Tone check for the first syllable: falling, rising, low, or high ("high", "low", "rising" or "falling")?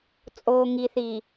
low